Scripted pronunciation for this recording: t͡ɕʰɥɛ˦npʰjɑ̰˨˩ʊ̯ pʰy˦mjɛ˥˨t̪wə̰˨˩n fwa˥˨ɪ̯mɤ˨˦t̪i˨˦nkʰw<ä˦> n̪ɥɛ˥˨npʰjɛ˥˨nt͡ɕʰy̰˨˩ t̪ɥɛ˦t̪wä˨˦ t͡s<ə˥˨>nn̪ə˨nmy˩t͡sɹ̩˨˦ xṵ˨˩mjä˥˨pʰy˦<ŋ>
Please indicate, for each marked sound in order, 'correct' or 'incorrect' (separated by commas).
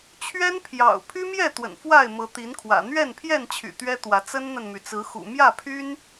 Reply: incorrect, incorrect, incorrect